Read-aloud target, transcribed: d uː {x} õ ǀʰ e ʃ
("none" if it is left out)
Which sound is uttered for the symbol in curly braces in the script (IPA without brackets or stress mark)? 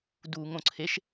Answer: ŋ